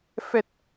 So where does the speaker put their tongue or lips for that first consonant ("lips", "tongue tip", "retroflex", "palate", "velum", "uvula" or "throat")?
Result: lips